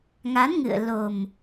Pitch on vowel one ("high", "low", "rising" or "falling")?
rising